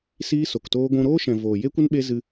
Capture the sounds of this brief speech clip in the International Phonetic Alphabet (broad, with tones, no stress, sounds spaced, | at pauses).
s iː˦ s o˨ k t oː˦ ɡʷ ũ˧ ɾ oː˦ ʃ ɛ̃˨ v oː˨ j e˦ kʷ ə˦ n ɓ e˦ z ɨ˧